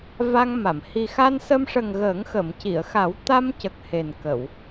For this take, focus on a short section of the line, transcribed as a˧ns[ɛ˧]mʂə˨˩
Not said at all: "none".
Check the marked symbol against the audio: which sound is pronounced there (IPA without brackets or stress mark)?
ə˧